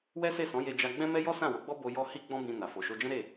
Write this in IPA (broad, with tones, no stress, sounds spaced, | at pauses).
w ɛ˦ s e˦˨ s ɔ̃˨˦ j e˧ d͡ʒ a˧ ɡ͡b ɛ̃˦ m ɛ˦ j ɔ˦ s ã˦˨ w o˨˦ ɡ͡b ɔ˦ b o˧ j ɔ˧ h i˦ ɡ͡b ɔ̃˦ b ĩ˧ n a˨ f o˨ ʃ o˧ d͡ʒ ɛ̃˦ ɾ e˦˨